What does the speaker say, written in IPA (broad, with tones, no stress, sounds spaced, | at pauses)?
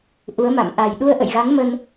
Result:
ʔ u˨˦ ə̯ m a̰˧˨ m ʔ a˨˩ j ɗ u˧ ə̯ ʔ ə̰˧˨ j ɣ a˨˦ ŋ m ə˧ n